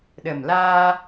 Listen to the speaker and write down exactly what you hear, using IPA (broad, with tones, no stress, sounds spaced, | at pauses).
ɗ ə˨˩ m l aː˧